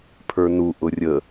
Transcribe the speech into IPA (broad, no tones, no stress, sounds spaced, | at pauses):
pʰ ə˞ n u ʔ ʊ rʲ ə